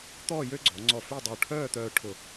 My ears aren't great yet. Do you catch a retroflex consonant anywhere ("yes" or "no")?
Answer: yes